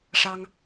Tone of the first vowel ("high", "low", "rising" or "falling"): high